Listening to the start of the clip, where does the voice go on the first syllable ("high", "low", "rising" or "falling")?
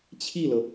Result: falling